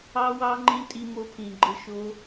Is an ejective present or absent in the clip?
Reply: present